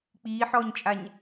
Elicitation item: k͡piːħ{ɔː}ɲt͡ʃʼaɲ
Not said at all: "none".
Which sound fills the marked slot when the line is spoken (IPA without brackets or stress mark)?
ɔː